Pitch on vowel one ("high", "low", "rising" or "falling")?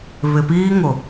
low